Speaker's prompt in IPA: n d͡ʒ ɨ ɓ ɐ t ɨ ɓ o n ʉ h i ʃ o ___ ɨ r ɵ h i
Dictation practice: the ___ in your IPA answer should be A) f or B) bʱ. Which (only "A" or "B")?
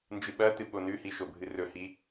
B